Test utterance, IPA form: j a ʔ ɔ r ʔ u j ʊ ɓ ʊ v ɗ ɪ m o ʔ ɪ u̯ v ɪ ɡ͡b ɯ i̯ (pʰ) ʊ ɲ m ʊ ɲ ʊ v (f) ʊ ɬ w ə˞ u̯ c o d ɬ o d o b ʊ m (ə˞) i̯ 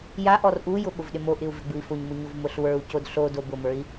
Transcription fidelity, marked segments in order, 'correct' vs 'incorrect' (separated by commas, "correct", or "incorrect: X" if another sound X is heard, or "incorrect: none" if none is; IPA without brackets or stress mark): incorrect: f, incorrect: m, correct